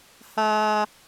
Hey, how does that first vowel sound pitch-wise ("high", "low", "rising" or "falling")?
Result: low